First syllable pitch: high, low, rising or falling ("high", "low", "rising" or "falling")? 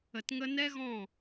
low